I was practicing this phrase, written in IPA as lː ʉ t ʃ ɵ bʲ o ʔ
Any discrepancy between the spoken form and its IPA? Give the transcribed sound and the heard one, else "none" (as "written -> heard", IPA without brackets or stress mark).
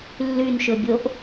t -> n